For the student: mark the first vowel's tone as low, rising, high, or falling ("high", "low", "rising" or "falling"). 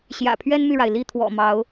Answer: low